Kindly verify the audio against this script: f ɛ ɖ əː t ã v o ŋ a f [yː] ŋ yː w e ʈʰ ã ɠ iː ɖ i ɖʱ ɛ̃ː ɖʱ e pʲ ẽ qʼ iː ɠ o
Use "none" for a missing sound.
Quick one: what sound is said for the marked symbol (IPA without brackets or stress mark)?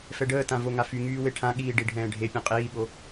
y